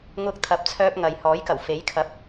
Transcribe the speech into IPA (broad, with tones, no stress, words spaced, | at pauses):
ŋʊ˧k̚t̪ʰɐ˨p̚t͡sʰœː˧p̚ ŋɐ˨jhɔː˨˥jkɐ˨˩wfe˨˥j kʰɐ˨˥p̚